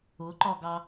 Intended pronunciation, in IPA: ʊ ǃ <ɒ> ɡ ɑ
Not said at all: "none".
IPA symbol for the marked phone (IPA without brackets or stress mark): ɒ